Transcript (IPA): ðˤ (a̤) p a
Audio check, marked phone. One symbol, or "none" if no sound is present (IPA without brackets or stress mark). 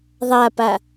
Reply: a